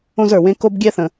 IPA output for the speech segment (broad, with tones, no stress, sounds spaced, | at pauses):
õ˥ z ə˞˩ w ẽ˥ k o˥ b ɡʲ ɛ˥ θ ə̃˩